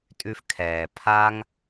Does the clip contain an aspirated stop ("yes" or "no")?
yes